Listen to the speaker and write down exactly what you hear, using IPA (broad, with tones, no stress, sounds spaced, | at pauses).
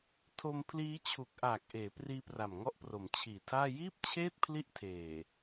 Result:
tʰ o˧ m pʰ l iː˦˥ t͡ɕʰ u˨˩ k̚ ʔ aː˨˩ k̚ ʔ eː˩˦ p r iː˦˥ p r a˨˩ m ŋ ɔ˦˥ ʔ p r o˩˦ m t͡ɕʰ iː˨˩ tʰ aː˥˩ j iː˥˩ p̚ t͡ɕʰ eː˥˩ t̚ pʰ l i˦˥ ʔ tʰ eː˨˩